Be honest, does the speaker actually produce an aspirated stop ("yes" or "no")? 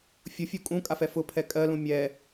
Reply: yes